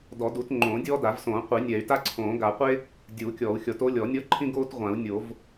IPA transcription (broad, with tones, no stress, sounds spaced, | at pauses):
d ɔ˨˩˦ d u˨˩˦ t ŋ͡ǃ õː˨˩˦ dʲ ɔː˥ d a˨˩˦ v s õː˨˩˦ qʷ i˨˩˦ nʲ ɛ˨˩˦ y̯ t a˥ ǀʰ õː˨˩˦ ɡ a˨˩˦ qʷ e˥ | dʲ uː˨˩˦ kʲ ɔː˨˩˦ u̯ xʲ ɔ˨˩˦ t o˥ lʲ ɔ˨˩˦ nʲ ɔ˥ ǃʰ ĩ˥ ɡ oː˥ t ʁʷ ã˨˩˦ u̯ nʲ o˨˩˦ v